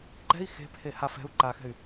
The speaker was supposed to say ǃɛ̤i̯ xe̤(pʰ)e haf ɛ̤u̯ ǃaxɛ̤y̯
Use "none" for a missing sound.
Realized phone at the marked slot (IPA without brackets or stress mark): pʰ